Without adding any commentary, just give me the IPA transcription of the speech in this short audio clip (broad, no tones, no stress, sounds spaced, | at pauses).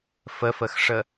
f ə f ə x ʂ ə